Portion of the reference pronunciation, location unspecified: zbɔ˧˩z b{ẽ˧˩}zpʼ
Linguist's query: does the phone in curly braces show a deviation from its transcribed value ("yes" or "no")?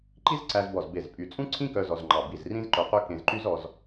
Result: yes